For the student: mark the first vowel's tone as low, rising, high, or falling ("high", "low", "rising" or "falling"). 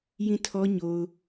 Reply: falling